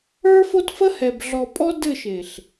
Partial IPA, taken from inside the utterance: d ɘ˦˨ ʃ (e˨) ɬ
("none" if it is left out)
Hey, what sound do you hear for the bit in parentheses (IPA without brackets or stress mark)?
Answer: e˨